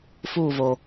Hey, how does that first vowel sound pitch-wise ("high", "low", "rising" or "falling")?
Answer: falling